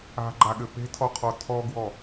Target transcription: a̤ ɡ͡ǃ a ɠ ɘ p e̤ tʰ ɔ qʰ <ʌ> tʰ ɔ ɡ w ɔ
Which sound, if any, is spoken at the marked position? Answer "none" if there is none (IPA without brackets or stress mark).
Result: ɔ